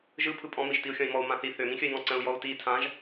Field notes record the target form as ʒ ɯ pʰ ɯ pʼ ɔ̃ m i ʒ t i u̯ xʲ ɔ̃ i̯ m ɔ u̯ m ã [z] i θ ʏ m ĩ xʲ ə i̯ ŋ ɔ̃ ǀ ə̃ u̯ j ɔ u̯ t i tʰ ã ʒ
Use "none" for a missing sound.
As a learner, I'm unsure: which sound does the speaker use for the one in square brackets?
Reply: θ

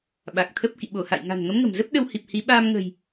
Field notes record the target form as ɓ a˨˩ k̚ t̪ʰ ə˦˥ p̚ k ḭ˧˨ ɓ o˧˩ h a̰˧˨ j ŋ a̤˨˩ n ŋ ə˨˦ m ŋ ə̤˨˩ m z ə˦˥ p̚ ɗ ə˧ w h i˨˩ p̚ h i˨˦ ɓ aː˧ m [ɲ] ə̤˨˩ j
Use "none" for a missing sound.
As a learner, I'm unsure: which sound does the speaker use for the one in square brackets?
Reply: ŋ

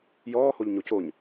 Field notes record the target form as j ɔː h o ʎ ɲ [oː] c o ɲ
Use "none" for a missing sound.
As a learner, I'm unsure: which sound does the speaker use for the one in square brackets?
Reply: o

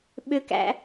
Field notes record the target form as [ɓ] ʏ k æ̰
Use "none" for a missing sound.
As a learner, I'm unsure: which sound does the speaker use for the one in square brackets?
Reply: ɓ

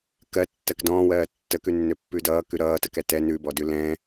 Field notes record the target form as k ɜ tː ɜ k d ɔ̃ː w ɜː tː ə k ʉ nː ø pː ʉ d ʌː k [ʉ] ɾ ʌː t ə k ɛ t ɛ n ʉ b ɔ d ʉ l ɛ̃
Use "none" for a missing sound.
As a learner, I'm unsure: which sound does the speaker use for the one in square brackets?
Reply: ʉ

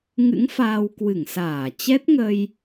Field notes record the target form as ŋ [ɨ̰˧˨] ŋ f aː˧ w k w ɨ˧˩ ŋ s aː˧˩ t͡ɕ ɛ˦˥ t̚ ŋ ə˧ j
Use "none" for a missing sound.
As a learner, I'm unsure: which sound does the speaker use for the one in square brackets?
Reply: ɨ̰˧˥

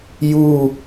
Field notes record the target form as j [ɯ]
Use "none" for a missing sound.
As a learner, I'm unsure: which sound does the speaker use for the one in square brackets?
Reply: u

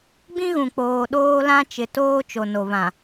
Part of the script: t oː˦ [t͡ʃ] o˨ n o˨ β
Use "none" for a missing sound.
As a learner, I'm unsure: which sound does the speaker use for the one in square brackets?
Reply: t͡ʃ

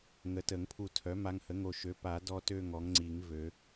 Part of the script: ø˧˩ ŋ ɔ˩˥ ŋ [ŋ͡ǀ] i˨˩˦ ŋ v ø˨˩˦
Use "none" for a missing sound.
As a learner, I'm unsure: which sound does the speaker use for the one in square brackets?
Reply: ŋ͡ǀ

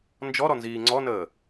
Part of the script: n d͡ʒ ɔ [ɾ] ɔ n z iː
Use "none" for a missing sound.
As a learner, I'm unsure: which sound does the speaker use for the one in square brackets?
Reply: ɾ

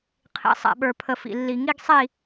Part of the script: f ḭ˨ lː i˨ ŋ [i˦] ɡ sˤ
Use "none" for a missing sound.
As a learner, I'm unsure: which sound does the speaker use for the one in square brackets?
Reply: i˦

